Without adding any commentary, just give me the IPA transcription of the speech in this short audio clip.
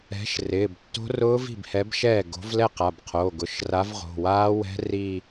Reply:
ɛ̤˨˥ ʃ r ɪː˩˧˩ b tː o̤˦˥ r ʊː˦˥ v i̤˥˩ b h ɛ˨˥ b ʃ ɛː˥˩ ɡ o̤˨˥ v l ɛ˥˧ q a˩˧˩ b qʰ oː˩˧˩ ɡ ʊ˩˧˩ ʃ r a˨˥ v ʁ o̤˩˧˩ w aː˦˥ w ɛ̤˦˥ r i˥˧

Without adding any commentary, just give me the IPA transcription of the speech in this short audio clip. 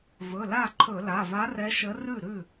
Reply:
v ɵ˩˧˩ l a˥˩ ǃʰ ɵ˧˩˧ l a˩˧˩ v a˧˥ r ɛ˧˥ ʃ ə˧˥ r ʉ˥˩ ɾ ʉ˥˩

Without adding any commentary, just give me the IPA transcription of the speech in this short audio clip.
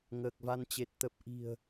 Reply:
ŋ əː˨˩ k̚ v a˧ n t͡ɕ e˨˩ t̚ t̪ ə˨˩ p̚ ʔ i̤˨˩ ə̯

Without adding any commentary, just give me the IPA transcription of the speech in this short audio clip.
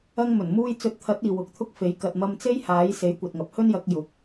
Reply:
ɐ˧ ŋ m ɵ˨˩ n m uː˧ j t͡s ɵ˨˥ t̚ t̪ʰ ɐ˨˥ t̚ iː˨ w ʊ˨˥ k̚ t̪ʰ ʊ˥ k̚ f e˨˥ j k ɐ˨ t̚ m ɐ˧ m t͡s e˥ j h aː˨˥ j s e˨˥ j kʷ ɐ˨ t̚ ŋ ɐ˨˥ p̚ h ɵ˥ n j ɐ˨˥ k̚ j ʊ˨˥ k̚

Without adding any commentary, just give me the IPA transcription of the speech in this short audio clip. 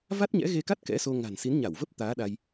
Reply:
v a˦˥ t̚ ɲ ɛ̰˧˥ ɣ e˧ k a˦˥ t̚ k ɛ̰˧˥ s o˧ ŋ a̤˨˩ n s i˨˦ n ɲ a˧˩ w v ə˦˥ p̚ t̪ aː˨˦ ɗ a˧ j

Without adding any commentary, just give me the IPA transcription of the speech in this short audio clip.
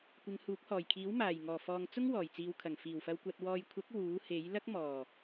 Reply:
kʷ ɪ˨˧ ŋ h uː˨˥ k̚ h ɔː˨˩ j kʰ iː˨˥ w m aː˨˩ j ŋ ɔː˨˩ f ɔː˨ ŋ t͡s ʊ˥ ŋ w ɔː˨˩ j t͡s iː˨˧ w kʰ ɐ˨˩ ŋ f iː˨˩ w f ɐ˧ w kʷ ɐ˧ t̚ w ɔː˧ j kʷʰ ɐ˨˥ k̚ w uː˨˥ h e˨˥ j l ɐ˥ k̚ m ɔː˨˩

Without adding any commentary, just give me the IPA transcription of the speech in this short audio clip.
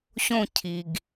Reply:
ɕ õ˦ cʰ i˨ ɡ

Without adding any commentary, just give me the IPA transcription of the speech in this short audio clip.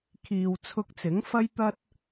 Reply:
kʰ iː˧ w t͡sʰ ʊ˧ k̚ t͡s ɪ˨˥ ŋ f ɐ˥ j t̪ ɐ˥ t̚

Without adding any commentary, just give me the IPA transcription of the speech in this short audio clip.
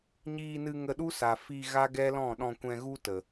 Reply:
ɲ iː˧ n ɨ˧ ŋ ə˧ ɗ u˦ s a˨ f i˧ ɣ a˦ ɡ ɛ˦ l ɔ̃˦˨ ɗ ɔ̃˧ kʷ ɛ̃˧ ɣ u˦ t ə˨

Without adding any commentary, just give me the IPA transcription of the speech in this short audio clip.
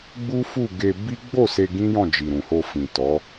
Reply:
ɡ͡b u˦ f u˦˨ ɡ e˧ b i˦ ɡ͡b o˦˨ s e˧ ɡ ĩ˦ j ɔ̃˦˨ d͡ʒ i˨ ɾ ũ˨ h o˧ f ĩ˨ t ɔ˨˦

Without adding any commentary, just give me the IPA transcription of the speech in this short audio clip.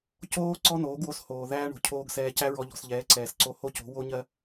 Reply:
c oː˦ ǀ ɔ˦ n oː˨˦ ɡ w o˧ s h oː˨ ð æː˦ ɳ o̤˨ cʰ oː˧ ɡ s ɛː˧ c æ˦ ɹ ɔ˧ ʎ ɔ̤˨ s ʎ ɛː˨˦ ǀ ɛː˨ s ǀ o˧ h o˦ c o̤˨˦ w o˦ ɲ ɜ˦

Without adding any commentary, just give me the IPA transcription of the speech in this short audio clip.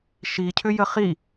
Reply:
ʃ i cʰ ʏ j ə χ i

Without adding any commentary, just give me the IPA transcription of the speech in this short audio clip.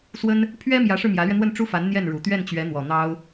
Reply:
s w ə˥ n | pʰ ɥ ɛ˥ m j ä˧˥ ʂ ɻ̩˧ m j ä˧˥ l ɥ ɛ˧ n̪ w ə˥˩ n ʈ͡ʂ u˥ f a˧˥ n n̪ j ɛ˥˩ n ɻ u˨˩ t̪ ɥ ɛ˥˩ n t͡ɕ ɥ ɛ˧˥ n̪ w ɔ˨˩ n̪ ɑ˥ ʊ̯

